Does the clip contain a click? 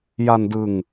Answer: no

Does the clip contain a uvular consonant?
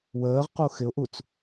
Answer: yes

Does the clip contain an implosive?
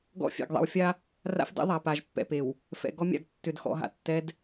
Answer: no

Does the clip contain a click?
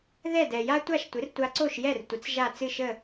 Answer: yes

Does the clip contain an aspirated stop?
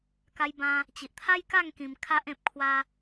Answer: yes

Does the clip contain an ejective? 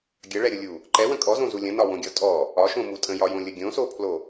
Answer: yes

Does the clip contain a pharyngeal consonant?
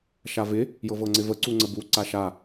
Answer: no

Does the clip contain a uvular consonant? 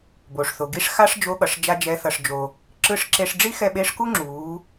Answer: no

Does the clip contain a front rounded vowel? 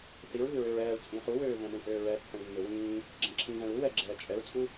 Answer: yes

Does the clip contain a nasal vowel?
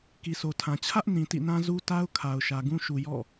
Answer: yes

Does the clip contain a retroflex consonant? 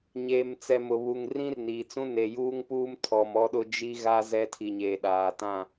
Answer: no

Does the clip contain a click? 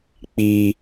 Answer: no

